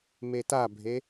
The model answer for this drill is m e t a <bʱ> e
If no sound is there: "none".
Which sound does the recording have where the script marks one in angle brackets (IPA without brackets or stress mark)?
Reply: bʱ